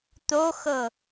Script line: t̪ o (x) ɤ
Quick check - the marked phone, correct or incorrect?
correct